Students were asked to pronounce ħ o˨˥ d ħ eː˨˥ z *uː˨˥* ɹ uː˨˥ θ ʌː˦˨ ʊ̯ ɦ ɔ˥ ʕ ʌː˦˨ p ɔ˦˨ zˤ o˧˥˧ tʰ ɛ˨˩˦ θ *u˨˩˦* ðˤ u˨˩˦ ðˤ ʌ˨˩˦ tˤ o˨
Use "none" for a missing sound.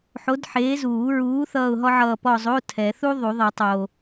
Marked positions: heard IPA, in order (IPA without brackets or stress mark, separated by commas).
uː˨˩˦, u˥